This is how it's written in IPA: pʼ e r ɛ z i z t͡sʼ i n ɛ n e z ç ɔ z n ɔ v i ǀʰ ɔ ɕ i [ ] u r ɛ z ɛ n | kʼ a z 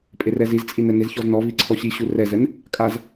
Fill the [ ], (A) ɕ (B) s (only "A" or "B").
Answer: A